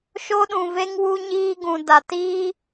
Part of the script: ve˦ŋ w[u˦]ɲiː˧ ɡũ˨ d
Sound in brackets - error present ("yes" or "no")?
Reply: yes